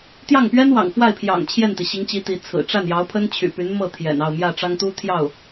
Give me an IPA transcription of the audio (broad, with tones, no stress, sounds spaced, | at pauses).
t̪ j ɑ˥˩ ŋ p ɥ ɛ˥ n w ɑ̰˨˩ ŋ f w a˥˩ ɪ̯ pʰ j ɑ̰˨˩ ŋ t͡ɕʰ j ɛ˥˩ n t̪ i˩ ɕ i˧˥ ŋ t͡ɕ i˧˥ t̪ i˧˥ t͡sʰ ɹ̩˨˩ ʈ͡ʂ a˥˩ n j ɑ˧˥ ʊ̯ pʰ ə˥ n t͡ɕʰ y̰˨˩ p y˧˥ n m ɤ˥˩ t̪ʰ j ɛ̰˨˩ n ɑ˥˧ ʊ̯ m j ä˥˩ ʈ͡ʂ ɑ˥ ŋ t̪ u˥ t̪ʰ j ɑ˥˩ ʊ̯